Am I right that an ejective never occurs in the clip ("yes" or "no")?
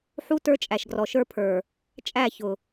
no